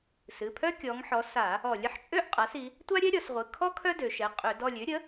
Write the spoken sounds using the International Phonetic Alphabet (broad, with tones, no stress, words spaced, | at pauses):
sɨ˩˧˩pʰœ˥ kʲɔ˩˧ŋħɔ˩˧ sa˧˩˧ | ɔ˧˩˧lʲ ə˩˧ħt͡ʃʼø˥ʔ qʼa˩˥si˩˧ | tʷa˥ɾʲɛ˥ɾʲɔ˩˧sʁʷɨ˩˧˩ kʰɔ˥ kʰœ˥dø˩˧ʃɛ˩˧˩ qʼø˧˩˧d ɔ˦˨lʲø˩˥ɾʲə˩˥